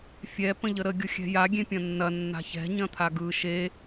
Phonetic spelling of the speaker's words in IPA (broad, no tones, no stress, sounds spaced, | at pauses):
fʲ ɛ p ə̃ ʎ ə ɾ ə ɡʲ ʊ xʲ ɛ̤ j a ɡʲ ẽ pʲ ɐ̃ nː ɐ nː a̤ ç ɛ̤ ɲ ɐ̃ t̪ʰ a ɡ ɯ ʃ e